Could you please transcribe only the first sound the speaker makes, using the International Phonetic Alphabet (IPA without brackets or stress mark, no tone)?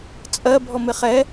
t͡sʼ